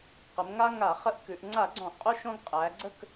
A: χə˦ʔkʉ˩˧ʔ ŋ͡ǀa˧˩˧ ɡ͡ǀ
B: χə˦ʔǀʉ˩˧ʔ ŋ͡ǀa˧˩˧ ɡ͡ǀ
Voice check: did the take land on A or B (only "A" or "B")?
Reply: A